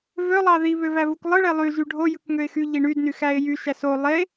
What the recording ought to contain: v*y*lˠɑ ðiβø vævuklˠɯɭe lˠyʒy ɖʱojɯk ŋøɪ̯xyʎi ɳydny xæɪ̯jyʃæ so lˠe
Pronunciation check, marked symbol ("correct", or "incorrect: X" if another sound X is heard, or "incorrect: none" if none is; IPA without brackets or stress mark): incorrect: ø